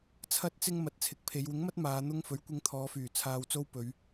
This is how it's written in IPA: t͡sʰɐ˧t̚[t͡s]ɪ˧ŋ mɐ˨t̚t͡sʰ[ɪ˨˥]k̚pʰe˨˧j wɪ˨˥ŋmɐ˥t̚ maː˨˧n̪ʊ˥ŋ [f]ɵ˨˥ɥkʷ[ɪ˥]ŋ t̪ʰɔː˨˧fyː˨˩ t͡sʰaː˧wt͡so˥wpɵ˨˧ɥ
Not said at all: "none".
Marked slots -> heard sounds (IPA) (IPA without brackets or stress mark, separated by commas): t͡s, ɪ˨˥, f, ɪ˧